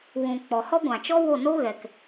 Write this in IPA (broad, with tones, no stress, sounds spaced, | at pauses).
w ũ˨ k͡p ɔ˨ h ɔ˦ ɡʷ ã˨ t͡ʃ ɔ˦ w o˦˨ n o˦ ɣ ɛ˨ k